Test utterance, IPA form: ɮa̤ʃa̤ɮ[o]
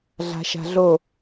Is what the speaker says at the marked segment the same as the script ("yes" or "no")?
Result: yes